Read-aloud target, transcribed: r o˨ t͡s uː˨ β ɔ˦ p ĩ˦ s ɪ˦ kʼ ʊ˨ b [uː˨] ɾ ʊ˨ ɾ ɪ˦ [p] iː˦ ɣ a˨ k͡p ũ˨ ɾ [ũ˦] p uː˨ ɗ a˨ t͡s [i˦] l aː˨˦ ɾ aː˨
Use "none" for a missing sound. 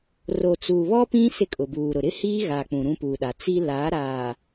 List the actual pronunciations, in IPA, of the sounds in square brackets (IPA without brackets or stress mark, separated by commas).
uː˨, h, ũ˦, i˦